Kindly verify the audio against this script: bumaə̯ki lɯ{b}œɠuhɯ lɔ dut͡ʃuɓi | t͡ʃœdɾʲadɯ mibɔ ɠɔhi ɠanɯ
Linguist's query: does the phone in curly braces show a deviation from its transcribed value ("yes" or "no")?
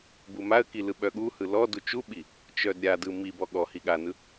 yes